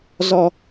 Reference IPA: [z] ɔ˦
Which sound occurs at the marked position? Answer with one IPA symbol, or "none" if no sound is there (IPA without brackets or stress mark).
z